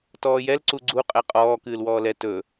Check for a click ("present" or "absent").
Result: present